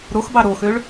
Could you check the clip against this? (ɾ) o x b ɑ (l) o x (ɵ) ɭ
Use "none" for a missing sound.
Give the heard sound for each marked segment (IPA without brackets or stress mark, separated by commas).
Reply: ɾ, ɾ, ø